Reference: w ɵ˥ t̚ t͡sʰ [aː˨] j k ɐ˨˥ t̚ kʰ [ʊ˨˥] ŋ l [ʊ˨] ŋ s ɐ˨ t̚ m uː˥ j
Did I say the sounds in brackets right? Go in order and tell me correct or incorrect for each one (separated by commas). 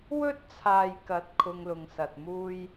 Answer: correct, incorrect, correct